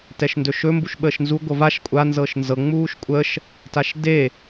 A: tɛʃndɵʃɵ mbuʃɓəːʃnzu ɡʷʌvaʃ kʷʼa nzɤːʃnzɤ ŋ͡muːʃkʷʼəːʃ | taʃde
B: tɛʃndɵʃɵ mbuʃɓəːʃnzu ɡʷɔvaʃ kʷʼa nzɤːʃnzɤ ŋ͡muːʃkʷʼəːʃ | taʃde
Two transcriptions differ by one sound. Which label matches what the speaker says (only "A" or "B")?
A